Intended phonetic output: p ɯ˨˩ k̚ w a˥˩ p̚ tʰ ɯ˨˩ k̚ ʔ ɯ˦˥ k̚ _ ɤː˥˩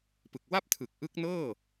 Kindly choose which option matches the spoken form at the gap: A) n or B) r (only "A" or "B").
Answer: A